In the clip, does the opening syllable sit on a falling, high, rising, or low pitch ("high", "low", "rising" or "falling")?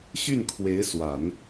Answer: falling